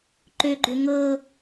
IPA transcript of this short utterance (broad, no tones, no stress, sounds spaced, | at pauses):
ǃ ø ɡ͡ǃ ʏ ŋ ɤ